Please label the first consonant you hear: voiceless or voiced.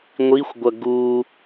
voiced